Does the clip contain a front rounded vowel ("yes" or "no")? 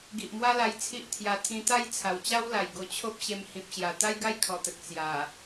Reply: no